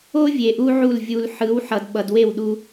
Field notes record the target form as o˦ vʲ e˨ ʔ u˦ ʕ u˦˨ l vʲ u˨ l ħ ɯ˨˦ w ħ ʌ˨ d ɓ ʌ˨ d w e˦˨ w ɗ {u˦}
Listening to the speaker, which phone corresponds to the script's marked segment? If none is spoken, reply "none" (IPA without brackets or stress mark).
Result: u˦